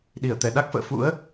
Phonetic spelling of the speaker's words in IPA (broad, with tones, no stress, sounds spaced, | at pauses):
ɗ i˧˩ ə̯ t̪ ɛ˧˩ ɗ a˦˥ k̚ f ə̰ː˧˨ f ṵ˧˥ ə̯